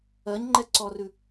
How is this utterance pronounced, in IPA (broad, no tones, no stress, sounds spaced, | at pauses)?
ɜ ɲ ŋ͡ǃ ɛ ǀ ɔ r ʉ